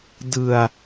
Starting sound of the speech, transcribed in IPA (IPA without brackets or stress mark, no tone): d